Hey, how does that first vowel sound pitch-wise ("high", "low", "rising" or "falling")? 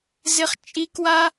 high